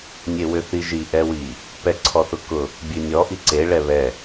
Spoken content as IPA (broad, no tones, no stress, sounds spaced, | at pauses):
nʲ e w ʏ θ i ʒ i ʔ ɛ w i | p ɛ ǀʰ ɔ θ ʊ k ʊ | bʲ ʉ nʲ ɔ ʔ i ǀ e ɭ ɛ β ɛ